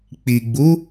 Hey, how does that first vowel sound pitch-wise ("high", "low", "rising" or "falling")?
low